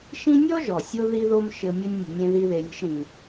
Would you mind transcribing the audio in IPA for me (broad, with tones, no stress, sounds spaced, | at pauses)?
ʃ ĩ˥ nʲ ɔ˥ ʒ ɔ˩ sʲ o˧ ð i˥ ð o˥ m ʃ ɘ˧ mʲ ə˥ nʲ mʲ ə̤˧ nʲ ẽ˥ ð i˥ ð e˧ lʲ ə̤˥ ʃ ɾ ĩ˩